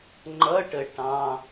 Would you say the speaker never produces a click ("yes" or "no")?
no